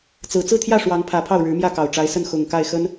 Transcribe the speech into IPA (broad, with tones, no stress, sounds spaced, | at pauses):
t͡s ɹ̩˨˩ t͡s ɹ̩˥˧ t̪ʰ j ä˥˩ ʂ w ɑ˧˥ ŋ pʰ ä˧˥ pʰ ɑ˥˩ ʊ̯ ɻ ɻ̩˧˥ m j ä˥˩ k ɑ˨˩ ʊ̯ ʈ͡ʂ a˧˥ ɪ̯ s ə˥˩ n x ʊ˨˩ ŋ k a˥˩ ɪ̯ x ə˥ n